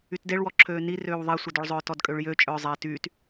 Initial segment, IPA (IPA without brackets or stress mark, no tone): y